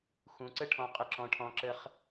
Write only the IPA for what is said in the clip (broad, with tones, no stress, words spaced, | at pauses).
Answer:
xũ˩˧ǀə˥ ʈʰɔ̃˧qʼɪ˧˩ ǁɔ̃˩˧ʈʰɔ̃˩˧ǁə˧χ